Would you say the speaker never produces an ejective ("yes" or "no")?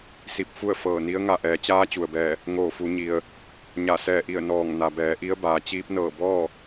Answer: yes